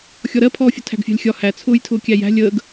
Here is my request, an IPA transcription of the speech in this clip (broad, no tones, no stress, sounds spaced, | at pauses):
xʲ ɔ ɾ ɜ pʰ ɔː fʲ ʊ tʰ æ̤ ɡ fʲ ɑ̤ lʲ xʲ ɒ h æ t͡sʰ ʊː j tʰ ʊː kʲ æ j æ̤ lʲ əː ɡ